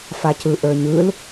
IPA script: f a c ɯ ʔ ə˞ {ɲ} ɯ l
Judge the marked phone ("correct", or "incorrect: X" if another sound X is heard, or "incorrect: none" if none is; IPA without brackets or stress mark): correct